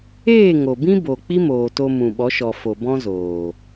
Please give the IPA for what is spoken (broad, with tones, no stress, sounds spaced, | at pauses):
eː˦˨ ŋ o˨ b ĩ˦ b o˨ k͡p i˦ m oː˨ t o˧ m ũ˨ ɓ ɔ˨˦ ʃ ɔ˨ f o˨ b ɔ̃˦ z oː˨